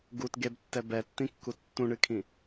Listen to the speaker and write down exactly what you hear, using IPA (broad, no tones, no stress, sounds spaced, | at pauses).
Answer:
ɡ u t ɡ e b tː ɛ b ɛ tː ĩ kː u tː ũ ɳ ɨ kʰ ĩ